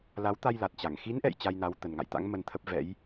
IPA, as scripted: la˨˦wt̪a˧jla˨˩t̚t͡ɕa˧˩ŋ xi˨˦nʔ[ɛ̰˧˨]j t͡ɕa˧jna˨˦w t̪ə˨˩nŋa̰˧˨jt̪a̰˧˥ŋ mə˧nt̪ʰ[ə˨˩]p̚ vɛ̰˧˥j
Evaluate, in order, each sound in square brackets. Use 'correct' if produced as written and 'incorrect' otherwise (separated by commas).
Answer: correct, incorrect